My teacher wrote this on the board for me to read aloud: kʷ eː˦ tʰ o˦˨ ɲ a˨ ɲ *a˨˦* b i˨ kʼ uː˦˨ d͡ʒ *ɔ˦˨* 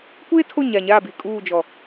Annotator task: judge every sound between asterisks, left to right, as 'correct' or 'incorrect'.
incorrect: a˦˨, incorrect: ɔ˨

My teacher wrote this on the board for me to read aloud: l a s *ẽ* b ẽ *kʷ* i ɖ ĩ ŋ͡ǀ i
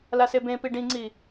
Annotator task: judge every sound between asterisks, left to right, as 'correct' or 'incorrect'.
incorrect: e, incorrect: p

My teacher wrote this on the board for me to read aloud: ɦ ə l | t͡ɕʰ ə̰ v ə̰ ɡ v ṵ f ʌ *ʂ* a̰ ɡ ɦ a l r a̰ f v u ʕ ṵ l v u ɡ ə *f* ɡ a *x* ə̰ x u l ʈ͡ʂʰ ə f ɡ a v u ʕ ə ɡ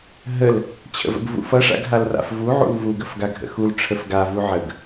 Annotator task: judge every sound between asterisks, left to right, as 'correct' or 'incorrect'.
correct, correct, incorrect: ɡʱ

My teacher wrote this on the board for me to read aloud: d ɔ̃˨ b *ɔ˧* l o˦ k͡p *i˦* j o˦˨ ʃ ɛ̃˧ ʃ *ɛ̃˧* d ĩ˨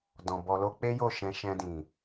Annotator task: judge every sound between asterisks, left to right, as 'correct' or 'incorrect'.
correct, incorrect: e˦, correct

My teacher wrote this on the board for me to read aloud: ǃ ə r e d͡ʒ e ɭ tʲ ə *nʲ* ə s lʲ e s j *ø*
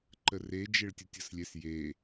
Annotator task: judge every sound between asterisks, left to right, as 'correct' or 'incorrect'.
incorrect: tʲ, incorrect: e

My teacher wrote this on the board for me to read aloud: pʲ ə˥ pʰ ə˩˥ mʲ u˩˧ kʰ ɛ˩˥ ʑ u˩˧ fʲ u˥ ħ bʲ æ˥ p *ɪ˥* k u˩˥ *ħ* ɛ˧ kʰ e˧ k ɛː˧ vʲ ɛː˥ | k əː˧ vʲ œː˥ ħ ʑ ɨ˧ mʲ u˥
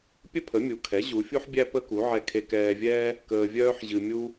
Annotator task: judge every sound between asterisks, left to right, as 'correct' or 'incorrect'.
incorrect: ə˥, incorrect: ʕ

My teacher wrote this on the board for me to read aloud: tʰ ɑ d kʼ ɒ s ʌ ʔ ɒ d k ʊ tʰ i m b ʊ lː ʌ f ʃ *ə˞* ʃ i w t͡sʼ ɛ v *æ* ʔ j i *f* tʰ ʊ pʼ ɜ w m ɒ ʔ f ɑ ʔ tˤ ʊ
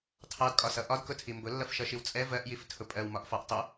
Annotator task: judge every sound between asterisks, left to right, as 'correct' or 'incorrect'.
incorrect: ʌ, incorrect: ɜ, correct

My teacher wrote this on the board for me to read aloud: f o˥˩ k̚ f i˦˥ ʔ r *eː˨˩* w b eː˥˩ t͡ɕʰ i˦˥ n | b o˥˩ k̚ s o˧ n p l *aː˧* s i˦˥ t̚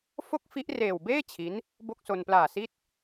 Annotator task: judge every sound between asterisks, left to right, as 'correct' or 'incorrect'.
correct, incorrect: aː˨˩

